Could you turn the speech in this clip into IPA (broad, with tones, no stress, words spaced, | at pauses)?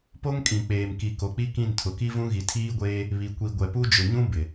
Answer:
po˦ŋkʼĩ˨k͡peː˨mki˨ ko˨k͡pi˦kĩ˦˨n tʰʊ˨ki˦vũ˦ ɣi˨tʰiː˦ɡʷeː˦ | βi˨kʷi˨ ɡʷɛ˨pu˦ d͡ʒʊ˨ɲũ˦ bɪ˨